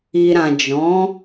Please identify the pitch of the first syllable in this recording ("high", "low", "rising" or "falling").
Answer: low